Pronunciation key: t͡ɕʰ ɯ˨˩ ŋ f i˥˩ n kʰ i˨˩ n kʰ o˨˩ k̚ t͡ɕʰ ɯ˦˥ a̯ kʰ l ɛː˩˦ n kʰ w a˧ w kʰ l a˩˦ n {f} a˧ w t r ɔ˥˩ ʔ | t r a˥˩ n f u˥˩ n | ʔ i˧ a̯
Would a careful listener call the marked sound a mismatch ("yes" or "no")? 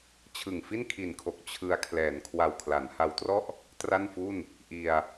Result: yes